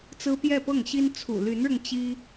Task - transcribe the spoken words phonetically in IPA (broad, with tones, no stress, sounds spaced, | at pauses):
t͡s ɹ̩˥ p j ɛ˥˧ p ɤ˥˩ ŋ ɕ i˥ n t͡sʰ ṵ˨˩ l y˧˥ n ɻ ʊ˧ ŋ t͡ɕ i˥